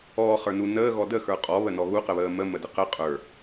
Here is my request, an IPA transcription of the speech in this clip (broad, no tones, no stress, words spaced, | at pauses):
ɔːχə˞nu nəːɣɔ dəxə˞ qʼɔβənɔ ɣuqəβəː məmədə qə qʼə˞